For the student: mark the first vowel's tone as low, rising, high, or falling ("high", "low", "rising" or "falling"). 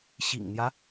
low